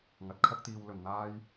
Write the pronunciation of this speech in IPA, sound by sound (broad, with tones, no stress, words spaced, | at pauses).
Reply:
ŋɐ˨˥t̚kʰɐ˥k̚t̪iː˧w lɵ˨nn̪aː˥j